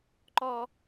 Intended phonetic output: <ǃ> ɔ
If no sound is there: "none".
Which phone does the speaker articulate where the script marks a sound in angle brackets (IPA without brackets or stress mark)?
ǃ